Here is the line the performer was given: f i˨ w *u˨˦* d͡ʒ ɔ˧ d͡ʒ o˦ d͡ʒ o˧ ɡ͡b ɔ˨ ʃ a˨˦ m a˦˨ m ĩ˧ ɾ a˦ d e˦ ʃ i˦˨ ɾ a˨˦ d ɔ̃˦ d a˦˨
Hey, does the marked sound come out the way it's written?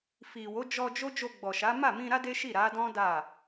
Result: no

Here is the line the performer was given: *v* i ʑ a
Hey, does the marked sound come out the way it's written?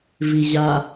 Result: yes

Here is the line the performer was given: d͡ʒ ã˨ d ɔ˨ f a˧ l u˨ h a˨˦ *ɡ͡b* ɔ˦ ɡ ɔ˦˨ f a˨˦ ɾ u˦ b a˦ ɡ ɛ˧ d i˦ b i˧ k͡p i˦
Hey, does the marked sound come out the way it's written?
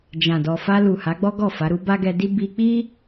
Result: yes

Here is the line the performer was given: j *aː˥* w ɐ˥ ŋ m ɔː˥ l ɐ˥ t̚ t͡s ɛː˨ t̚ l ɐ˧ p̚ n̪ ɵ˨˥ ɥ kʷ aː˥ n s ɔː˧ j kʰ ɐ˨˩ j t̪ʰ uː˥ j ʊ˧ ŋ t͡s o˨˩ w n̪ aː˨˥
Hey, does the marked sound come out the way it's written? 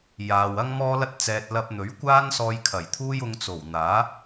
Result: no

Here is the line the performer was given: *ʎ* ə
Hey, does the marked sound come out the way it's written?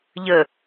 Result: yes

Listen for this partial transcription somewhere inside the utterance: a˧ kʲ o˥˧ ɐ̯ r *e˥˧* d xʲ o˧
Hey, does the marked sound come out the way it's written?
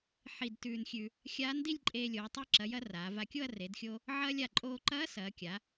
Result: no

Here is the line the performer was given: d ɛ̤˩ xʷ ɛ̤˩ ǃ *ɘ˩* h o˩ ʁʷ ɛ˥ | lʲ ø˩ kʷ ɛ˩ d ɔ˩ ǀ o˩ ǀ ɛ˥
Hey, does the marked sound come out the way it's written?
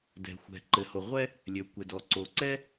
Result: yes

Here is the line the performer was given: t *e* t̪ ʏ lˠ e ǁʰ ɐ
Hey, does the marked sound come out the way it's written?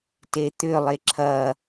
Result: yes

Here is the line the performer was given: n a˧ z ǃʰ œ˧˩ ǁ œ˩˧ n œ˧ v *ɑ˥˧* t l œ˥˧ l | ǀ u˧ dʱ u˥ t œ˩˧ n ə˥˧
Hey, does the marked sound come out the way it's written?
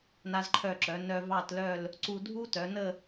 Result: yes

